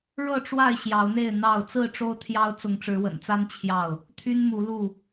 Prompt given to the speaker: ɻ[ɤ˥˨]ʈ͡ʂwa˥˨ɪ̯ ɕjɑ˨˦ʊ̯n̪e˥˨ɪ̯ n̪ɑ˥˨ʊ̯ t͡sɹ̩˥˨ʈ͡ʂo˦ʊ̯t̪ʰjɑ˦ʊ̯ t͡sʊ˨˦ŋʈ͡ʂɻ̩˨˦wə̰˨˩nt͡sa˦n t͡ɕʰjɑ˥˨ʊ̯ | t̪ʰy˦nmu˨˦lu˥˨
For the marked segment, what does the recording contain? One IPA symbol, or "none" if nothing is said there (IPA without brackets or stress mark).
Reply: ɤ˥˨